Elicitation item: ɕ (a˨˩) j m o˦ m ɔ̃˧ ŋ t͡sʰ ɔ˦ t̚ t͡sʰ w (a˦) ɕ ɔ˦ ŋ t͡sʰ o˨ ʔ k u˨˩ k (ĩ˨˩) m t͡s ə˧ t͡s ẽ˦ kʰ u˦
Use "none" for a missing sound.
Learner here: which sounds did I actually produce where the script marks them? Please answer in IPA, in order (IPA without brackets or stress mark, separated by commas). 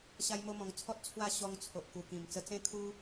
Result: a˦, a˥˧, ĩ˨˩